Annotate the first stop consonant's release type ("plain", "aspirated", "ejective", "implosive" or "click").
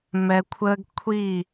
aspirated